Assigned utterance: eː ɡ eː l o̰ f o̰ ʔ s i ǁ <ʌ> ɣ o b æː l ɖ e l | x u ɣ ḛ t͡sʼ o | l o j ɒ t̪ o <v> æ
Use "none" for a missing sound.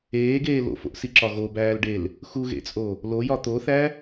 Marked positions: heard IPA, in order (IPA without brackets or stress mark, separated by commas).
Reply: ɒ, θ